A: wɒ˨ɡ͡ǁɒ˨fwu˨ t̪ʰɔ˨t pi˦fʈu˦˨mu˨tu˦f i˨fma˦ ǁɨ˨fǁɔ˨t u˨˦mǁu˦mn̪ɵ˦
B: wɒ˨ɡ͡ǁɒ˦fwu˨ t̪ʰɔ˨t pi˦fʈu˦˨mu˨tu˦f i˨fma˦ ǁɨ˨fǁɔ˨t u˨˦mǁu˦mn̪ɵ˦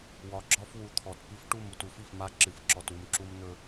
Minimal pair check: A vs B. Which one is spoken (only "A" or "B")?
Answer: B